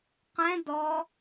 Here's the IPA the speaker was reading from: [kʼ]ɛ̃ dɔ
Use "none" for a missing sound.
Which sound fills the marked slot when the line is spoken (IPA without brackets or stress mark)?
q